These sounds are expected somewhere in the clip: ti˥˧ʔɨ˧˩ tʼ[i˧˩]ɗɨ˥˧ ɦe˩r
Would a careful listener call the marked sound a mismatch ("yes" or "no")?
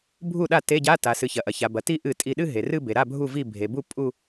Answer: no